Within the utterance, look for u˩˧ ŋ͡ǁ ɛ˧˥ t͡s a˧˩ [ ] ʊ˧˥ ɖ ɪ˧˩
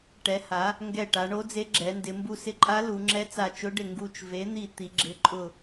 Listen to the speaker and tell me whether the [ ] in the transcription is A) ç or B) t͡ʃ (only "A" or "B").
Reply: B